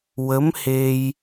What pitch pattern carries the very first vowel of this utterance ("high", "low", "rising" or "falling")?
rising